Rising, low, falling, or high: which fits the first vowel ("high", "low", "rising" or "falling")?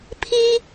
high